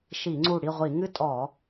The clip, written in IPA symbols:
ʃ i˧˩˧ ŋ͡ǀ u˧˩ ɽ i˥˨ ʁʷ i˧˩˧ ŋ ɨ˦ tʼ ɔ˧˩˧

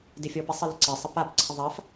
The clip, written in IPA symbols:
d ɪ fʲ ɔ p ɪ sˤ ə l ə ǀ ɪ sˤ ə p a p ǀʰ ə ðˤ a f

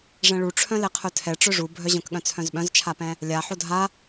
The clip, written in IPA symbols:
ʐ ɛ̃ ɭ u ʈ͡ʂʰ œ̃ l ɛ qʰ œ tʰ ɛ ʈ͡ʂ œ ʐ u bʱ œ ʑ œ̃ k ɠ œ̃ t͡sʰ œ̃ z ɓ œ̃ z t͡ʃʰ a p ɛ̃ | lʲ a ħ o dʱ a

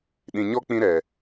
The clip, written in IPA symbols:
ɗ ĩ˨ ɲ ɔ˦ k͡p ĩ˦ ɾ ɛ˨

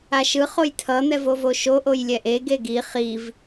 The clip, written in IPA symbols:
a ʃ ɯ χ o j tʰ ʌ n̪ ɛ v o v o ʃ o ʔ o j lʲ ɛ ʔ e ɡ e ɡ i χ i v

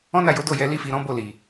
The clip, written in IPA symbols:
ɔ̃˦ n a˦˨ j o˨˦ d o˦˨ j ɛ˨˦ l i˦ f i˧ ɾ ɔ̃˦ b o˦˨ l i˨

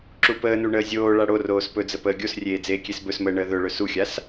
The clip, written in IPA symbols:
ǁ u p əː n u ɳ əː zʲ oː ɭ a ɽ o r oː s p ɵ d͡z ə p əː ɡʲ o s rʲ eː d͡z eː kʲ e s b ɵ s m əː ɳ əː ð ɵ ɭ ɵ s u xʲ a s

